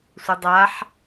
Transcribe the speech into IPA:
sʷ ɐ dˤ a ħ

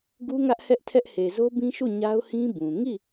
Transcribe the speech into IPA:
ɡ u˦ ŋ ä˦ ʔ h ɛ˦ ʔ tʰ ɛ˦ ʔ h e˨ z o˦ b ĩ˦ ʃ u˦˨ ɲ a˦ ʊ̯ h ĩ˦ b ũ˨ ŋ i˦˨

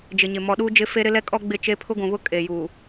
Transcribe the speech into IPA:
d͡ʒ ɪ˨ ɲ ɪ˨ m ɔ˨ ɗ uː˦ d͡ʒ ɪ˦ f e˦ ɾ ɪ˦ l ɛ˦ kʼ ɔ˦ ɡ͡b ɪ˦˨ t͡ʃ e˦ pʰ ʊ˦ ɡʷ ũ˨ β ʊ˦ kʼ e˨ j uː˨

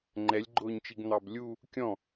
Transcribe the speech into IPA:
ŋ͡ǃ ɛ lʲ ɡ͡ǃ ʊː ɲ t͡ʃ i ɡ n̪ ɑ b lʲ u | kʲ ɔ̃

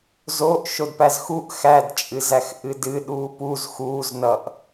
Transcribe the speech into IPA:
z o ʔ ʃ o d p æ z x u ʔ x æ d t͡ʃʼ ɨ z æ x ʔ ɨ d ɨ ɗ uː p u z x uː z n ʌ ʔ

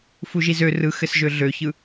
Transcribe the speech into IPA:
f u ʒ i z ø r ɯ x ɘ s ʒ ø ɮ ø ç ɯ

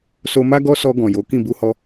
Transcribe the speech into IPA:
s o˧ m a˦ ɡ ɔ˦ s ɔ˧ ɡ ɔ̃˨ j o˨˦ k ĩ˦˨ b u˧ h ɔ˧

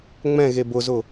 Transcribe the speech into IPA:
ŋ͡m ɛ̃ ɣ e b ʊ z ʊ

